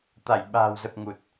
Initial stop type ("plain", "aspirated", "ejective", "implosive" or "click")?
plain